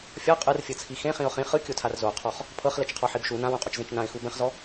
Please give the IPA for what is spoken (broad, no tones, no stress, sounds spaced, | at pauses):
fʲ ɔ qʼ ɯ r fʲ ɤ t͡sʰ i x ẽ χ ĩ ʊ̯ χ ĩ χ ɯ kʲ o tʰ a r z o qʰ ɔ χ | pʰ ɤ χ l ɛ t͡ʃ qʰ ɔ ħ i b ʃ u n ã w ũ qʼ u t͡ʃ z ẽ t͡ʃ n ã ɪ̯ x u b ɛ̃ χ z ɔ